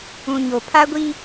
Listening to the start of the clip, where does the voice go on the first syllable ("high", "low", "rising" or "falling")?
low